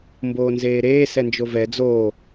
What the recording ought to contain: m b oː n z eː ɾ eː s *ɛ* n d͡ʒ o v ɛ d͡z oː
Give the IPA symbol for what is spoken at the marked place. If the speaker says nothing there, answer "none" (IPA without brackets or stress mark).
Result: ɛ